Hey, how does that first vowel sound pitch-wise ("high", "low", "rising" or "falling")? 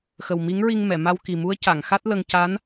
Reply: low